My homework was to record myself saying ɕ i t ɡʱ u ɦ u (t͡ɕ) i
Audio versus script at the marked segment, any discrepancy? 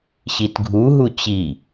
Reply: no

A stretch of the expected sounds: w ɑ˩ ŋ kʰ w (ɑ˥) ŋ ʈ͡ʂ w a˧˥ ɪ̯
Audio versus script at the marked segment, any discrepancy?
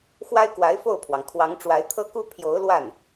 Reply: yes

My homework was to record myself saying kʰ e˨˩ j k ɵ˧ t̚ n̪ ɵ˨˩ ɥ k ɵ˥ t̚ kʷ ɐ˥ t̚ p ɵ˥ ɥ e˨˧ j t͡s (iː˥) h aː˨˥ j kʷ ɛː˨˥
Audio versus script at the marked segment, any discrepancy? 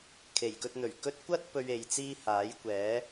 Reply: no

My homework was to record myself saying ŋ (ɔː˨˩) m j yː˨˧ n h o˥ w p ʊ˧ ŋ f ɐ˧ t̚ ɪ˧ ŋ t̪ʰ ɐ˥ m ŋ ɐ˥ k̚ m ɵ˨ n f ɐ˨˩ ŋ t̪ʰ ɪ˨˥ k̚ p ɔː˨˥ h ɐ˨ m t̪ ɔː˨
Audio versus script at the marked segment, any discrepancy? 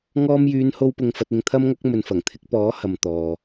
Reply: yes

